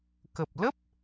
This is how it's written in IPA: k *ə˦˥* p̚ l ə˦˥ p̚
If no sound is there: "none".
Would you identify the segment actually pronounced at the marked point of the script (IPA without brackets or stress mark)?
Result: ə˨˩